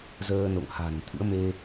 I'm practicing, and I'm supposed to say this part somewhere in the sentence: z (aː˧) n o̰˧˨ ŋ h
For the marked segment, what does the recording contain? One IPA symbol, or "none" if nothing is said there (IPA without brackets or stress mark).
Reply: əː˧